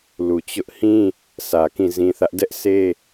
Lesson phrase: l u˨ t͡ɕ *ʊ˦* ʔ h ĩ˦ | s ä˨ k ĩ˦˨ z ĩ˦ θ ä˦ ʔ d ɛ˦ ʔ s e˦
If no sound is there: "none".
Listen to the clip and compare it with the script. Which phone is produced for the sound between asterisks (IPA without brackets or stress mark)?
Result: ʊ˦